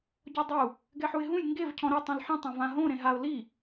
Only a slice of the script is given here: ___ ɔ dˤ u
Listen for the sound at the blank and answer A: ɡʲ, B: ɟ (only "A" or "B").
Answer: B